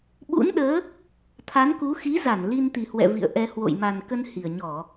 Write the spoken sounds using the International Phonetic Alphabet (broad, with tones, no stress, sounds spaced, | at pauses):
ɓ ṵ˧˥ n ɗ əː˨˦ | t̪ʰ a˨˦ n k u˨˦ x i˨˦ z a˧˩ n l i˧ n t̪ i˨˩ h w ɛ̰˧˨ v ḭ˧˨ ə̯ ʔ ɛ˧ h w o̰˧˨ j m a˨˩ n k ə˧ n h i˨˩ ə̯ ɲ ɔ˧˩˨